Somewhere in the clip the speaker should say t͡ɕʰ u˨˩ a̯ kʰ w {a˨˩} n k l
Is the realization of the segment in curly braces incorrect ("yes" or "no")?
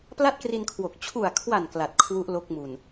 no